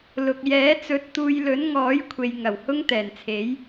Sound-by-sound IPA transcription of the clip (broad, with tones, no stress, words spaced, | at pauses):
lʊ˨k̚ jɛː˨˥t͡sɵ˨˥t̚t̪uː˧jlɵ˨˥n ŋɔː˨˥jkʷʰe˨jŋɐ˨˩w hʊ˥ŋt̪ɛː˨˩nt͡sʰe˨˥j